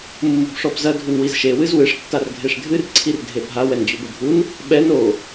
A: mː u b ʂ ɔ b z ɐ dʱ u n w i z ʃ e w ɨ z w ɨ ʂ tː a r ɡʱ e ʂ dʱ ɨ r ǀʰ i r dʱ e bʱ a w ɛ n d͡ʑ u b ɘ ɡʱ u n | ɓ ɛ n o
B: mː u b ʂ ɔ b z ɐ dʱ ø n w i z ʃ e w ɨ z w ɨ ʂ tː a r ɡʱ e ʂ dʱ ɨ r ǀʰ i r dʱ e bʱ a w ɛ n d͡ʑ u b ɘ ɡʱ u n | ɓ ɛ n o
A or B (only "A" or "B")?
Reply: A